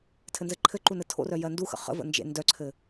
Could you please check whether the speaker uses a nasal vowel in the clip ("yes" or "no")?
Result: no